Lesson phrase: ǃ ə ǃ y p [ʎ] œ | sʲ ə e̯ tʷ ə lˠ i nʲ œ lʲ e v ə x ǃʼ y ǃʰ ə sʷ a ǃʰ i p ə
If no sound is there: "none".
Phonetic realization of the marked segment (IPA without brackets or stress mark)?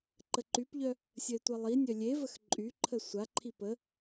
ʎ